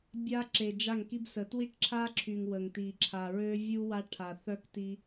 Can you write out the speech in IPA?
bʲa˦ ǁe˨d͡ʒa˦˨ŋki˦bsə˨˦ twi˦ʈǁʰa˦ǁʰy˨ŋ wə˨ŋti˨ ǁʰa˨ɹø˦ vʲu˦ wa˦ʈʰa˨ θœ˦kti˦

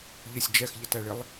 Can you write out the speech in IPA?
ʎɪsʲ d͡ʒɛxʎətæɭɪlˠ

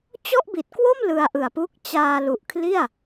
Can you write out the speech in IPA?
t͡ɕɔ˥˩ʔbi˨˩t̚kwo˥˩m lɯ˧a̯ʔɯ˨˩a̯pu˦˥k̚ t͡ɕaː˧lu˨˩ʔ kʰli˥˩a̯

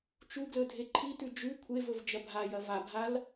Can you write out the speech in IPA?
t͡ʃuɡlɵ dʱeǃʰitʉ d͡ʒʉ kʷʰevɵv d͡ʒɐbʱajɐ vabʱal

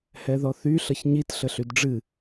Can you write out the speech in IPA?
hɛðɔθy ɬʌçɲit ɬəɬydɖ͡ʐɨ

